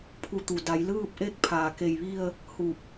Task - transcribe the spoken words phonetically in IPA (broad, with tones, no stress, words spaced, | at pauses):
pʰu˧t̪u˩ da˩˧jlɯː˥˨p̚ʔe˥˨k̚ pʰaː˧˩ke˧˩jʋi˥˨ə̯ | hu˧˩p̚